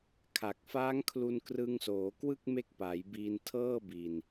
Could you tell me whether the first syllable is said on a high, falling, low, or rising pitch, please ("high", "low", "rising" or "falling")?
low